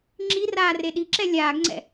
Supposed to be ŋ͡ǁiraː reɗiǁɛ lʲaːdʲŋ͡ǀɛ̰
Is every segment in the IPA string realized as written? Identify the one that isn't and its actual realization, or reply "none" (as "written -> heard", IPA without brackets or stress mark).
dʲ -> ɡ